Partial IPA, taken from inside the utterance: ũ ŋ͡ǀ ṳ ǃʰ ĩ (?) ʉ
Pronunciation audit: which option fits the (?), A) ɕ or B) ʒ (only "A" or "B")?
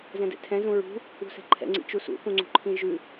B